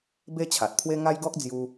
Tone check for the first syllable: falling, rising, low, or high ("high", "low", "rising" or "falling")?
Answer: high